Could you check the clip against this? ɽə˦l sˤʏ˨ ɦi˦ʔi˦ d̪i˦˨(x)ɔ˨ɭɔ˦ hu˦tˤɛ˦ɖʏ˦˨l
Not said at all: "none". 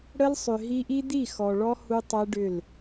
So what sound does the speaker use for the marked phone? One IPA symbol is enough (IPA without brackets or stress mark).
x